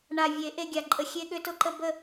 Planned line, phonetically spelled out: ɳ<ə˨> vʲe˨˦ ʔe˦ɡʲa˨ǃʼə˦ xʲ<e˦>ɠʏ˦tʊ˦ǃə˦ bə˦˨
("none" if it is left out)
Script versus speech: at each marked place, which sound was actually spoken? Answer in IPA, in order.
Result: a˨, e˦

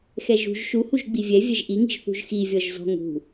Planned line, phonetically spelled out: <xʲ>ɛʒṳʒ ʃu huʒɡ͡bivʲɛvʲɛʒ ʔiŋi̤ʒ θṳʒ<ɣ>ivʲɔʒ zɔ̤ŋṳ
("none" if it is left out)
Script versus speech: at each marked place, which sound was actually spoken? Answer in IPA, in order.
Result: x, x

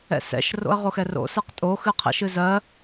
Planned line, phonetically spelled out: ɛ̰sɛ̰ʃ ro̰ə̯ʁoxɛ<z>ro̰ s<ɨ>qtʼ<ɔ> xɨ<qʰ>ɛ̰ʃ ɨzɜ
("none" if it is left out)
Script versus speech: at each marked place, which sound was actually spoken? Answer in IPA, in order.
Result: none, ɨ, o, qʰ

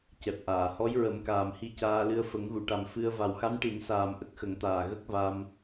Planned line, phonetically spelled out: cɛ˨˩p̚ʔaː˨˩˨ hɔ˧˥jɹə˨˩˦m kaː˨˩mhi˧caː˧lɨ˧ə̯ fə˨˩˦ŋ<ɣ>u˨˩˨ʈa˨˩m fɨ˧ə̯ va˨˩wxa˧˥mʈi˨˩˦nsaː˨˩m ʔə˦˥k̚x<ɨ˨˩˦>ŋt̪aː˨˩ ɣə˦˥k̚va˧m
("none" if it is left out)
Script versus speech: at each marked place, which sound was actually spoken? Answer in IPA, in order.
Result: ɣ, ə˨˩˦

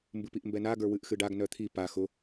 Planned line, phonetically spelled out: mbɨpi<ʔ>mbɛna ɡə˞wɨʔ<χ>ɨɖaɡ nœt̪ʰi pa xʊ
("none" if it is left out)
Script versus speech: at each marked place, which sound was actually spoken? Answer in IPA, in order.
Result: ʔ, x

